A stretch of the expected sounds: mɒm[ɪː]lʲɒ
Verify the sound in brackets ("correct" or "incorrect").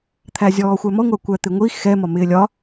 correct